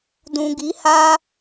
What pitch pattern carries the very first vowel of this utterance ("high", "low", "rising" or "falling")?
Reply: low